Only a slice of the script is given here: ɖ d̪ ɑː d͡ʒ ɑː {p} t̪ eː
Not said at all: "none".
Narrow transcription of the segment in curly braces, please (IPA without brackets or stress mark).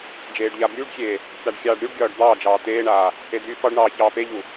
none